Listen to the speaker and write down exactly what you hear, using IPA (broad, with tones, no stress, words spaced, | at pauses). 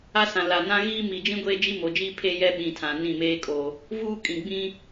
a˦sã˨ la˨nã˦ɣiː˦ mi˨d͡ʒĩ˦ ɡʷeː˦d͡ʒi˦mo˨d͡ʒiː˦ pʰe˦jɛ˦ ɓĩ˨tʰã˨ nĩ˦˨meː˦kʼo˨ | vuː˦kʼĩ˨ɡ͡bĩ˦